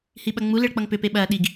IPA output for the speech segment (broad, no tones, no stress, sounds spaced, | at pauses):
h i ɓ ɐ ŋ͡m u l e ɭ k͡p ʌ ŋ p ʏ p e ɓ ɐː ɗ i ɡ